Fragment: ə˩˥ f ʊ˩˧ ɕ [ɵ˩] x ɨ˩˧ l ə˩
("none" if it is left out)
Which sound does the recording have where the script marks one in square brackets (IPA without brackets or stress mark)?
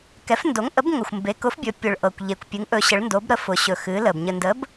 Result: ɵ˩